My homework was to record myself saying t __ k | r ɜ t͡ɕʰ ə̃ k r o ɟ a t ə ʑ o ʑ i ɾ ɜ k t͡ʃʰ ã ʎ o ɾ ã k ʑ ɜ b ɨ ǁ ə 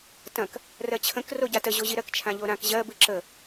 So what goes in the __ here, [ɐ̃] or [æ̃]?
ɐ̃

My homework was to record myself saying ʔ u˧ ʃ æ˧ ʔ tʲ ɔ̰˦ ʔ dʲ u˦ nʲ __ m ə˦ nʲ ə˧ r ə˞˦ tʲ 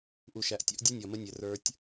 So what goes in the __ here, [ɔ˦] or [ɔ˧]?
ɔ˧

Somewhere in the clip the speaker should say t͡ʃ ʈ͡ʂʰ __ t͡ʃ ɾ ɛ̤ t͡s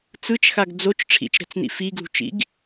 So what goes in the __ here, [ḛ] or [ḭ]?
ḭ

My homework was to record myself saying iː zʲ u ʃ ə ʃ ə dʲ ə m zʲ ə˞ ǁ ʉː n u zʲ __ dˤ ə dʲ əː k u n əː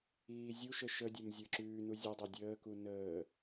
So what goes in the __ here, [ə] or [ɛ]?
ə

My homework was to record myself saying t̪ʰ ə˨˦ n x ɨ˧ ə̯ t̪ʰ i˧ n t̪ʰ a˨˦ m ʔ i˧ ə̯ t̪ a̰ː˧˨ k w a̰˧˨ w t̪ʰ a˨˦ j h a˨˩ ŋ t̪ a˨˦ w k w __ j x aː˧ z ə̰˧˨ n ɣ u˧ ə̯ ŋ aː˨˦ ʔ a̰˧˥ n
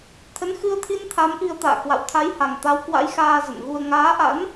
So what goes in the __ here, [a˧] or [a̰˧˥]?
a̰˧˥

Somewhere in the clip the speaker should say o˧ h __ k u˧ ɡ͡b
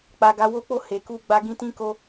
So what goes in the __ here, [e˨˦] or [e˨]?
e˨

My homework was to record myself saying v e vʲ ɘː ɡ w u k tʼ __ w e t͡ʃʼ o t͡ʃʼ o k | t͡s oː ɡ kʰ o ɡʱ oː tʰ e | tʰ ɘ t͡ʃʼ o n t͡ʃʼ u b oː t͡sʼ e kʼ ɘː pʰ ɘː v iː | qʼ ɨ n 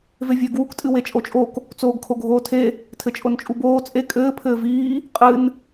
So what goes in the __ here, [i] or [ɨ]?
ɨ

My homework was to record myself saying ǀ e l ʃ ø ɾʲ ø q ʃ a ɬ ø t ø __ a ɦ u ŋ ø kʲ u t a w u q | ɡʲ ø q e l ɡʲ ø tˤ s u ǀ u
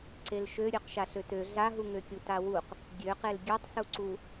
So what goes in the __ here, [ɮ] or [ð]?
ɮ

